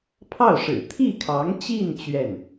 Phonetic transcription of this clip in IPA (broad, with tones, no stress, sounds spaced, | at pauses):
pʰ ɑ˥˩ ʊ̯ ʂ ɻ̩˨˩ t̪ʰ i˥˩ kʰ ɑ˧˥ ŋ t͡ɕ i˥˧ n t͡ɕ ɥ ɛ˥˩ n